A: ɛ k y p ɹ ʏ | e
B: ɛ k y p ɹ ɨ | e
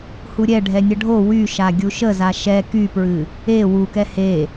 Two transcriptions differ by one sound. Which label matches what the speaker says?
B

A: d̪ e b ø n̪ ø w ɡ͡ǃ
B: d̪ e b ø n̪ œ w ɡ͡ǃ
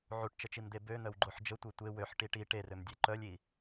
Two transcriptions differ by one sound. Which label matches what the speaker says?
B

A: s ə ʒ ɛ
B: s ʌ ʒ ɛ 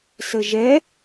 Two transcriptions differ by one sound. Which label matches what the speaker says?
A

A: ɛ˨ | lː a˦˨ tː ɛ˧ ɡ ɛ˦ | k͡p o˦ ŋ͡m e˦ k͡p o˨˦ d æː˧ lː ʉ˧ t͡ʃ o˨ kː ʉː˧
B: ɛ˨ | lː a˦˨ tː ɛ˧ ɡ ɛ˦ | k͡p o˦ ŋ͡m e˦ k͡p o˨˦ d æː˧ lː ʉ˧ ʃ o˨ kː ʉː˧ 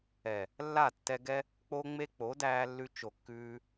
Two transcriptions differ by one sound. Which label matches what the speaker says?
A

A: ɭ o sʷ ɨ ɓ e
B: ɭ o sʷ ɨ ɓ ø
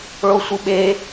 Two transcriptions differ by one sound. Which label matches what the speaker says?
A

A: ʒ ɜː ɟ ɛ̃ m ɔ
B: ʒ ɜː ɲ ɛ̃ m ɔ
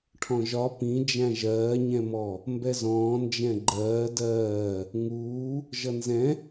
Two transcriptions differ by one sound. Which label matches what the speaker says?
B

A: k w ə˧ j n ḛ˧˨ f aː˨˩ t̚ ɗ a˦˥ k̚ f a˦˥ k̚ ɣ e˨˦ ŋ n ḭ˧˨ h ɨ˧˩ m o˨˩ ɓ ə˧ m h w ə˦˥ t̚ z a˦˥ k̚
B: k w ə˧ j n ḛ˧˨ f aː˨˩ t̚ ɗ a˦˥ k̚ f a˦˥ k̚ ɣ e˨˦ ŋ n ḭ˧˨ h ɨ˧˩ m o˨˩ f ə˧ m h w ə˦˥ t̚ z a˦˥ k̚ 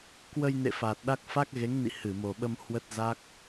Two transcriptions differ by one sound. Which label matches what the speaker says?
A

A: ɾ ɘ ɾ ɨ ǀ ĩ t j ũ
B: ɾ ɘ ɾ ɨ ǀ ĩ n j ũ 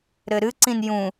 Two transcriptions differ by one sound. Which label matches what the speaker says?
B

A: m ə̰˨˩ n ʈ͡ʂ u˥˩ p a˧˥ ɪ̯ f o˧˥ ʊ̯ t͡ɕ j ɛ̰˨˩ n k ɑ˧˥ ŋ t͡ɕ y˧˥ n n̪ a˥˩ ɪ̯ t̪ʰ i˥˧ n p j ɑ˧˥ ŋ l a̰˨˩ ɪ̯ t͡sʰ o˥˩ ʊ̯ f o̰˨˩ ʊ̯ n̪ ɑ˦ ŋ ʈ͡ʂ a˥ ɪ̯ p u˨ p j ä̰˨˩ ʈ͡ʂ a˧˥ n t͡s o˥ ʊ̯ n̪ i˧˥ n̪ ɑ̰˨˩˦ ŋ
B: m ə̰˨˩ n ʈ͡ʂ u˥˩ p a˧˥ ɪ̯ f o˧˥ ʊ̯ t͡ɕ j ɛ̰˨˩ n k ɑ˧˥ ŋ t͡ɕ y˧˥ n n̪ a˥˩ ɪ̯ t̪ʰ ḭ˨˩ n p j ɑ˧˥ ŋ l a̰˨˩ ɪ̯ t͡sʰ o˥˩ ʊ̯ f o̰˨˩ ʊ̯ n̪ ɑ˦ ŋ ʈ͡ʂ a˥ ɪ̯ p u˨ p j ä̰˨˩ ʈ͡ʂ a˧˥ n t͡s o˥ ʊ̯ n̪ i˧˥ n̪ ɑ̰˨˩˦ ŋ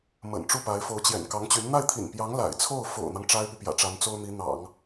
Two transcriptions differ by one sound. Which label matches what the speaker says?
B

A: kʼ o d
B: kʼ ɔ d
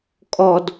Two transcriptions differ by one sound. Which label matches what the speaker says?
B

